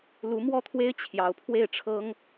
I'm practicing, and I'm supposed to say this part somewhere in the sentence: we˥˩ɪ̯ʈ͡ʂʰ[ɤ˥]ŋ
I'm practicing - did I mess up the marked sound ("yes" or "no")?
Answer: no